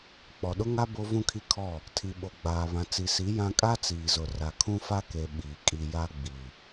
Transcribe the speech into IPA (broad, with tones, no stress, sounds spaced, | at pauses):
k͡p ɔ˨ ɗ ʊ˦ ŋ a˦ b o˦ v ũ˦ kʰ i˦ kʰ ɔ˦˨ | tʰ i˨ ɓ o˨ ɡ͡b aː˨ β ã˨ t͡s i˨ s i˨˦ j ã˦ kʼ a˦ t͡s iː˨ z ʊ˨ r a˨ kʰ ũ˦ f a˦ k e˨ ɓ iː˨ kʼ i˨ j a˦ ɡ͡b i˨